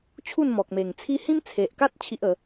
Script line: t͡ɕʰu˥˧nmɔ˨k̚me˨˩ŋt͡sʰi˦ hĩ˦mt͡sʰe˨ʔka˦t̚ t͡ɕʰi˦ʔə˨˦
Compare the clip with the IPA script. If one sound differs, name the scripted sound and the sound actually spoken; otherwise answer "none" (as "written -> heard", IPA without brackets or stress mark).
none